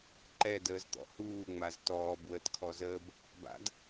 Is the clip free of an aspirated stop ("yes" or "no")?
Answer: no